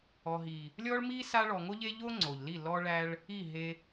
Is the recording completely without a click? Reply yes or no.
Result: no